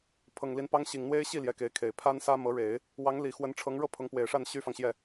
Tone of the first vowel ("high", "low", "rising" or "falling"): low